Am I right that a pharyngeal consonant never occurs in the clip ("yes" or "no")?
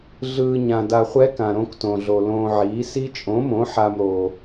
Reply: no